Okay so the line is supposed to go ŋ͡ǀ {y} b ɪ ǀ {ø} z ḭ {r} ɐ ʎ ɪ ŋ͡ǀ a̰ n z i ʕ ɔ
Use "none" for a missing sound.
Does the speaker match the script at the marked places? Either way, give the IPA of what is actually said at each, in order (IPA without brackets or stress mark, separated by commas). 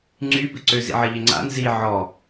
y, ø, ʕ